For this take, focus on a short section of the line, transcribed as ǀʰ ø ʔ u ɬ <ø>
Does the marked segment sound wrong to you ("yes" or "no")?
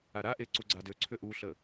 yes